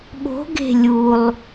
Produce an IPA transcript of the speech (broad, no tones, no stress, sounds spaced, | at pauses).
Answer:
ɓ o̤ ɡ e̤ lʲ u lˠ